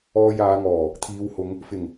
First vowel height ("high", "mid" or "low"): mid